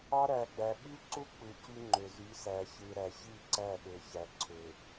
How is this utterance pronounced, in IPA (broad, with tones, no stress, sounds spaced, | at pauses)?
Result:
ɑ˦ ɾ æ˨ ɡ͡b æ˨ ɓ y˦ ǀ u˦ k͡p ɯ˨ c y˦ ŋ͡ǃ ø˨ z y˨˦ s æ˨ ç ɯ˨ ɾ æ˨ ç i˦˨ ǀ æ˦˨ ɠ ø˨ ç æ˨ ǀʰ ø˨